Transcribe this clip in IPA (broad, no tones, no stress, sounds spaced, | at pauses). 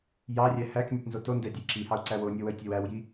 j ɑ rʲ æ h æ k nʲ ɛ t n z o t o n d ɛ dʲ ə j ǁ i h ɑ u̯ ǀ æ w o nʲ o w ə j tʲ æ w æ w j i